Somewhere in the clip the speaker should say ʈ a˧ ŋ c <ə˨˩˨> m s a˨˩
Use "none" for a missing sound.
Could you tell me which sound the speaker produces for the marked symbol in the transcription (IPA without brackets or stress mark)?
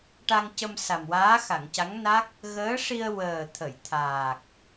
ə˧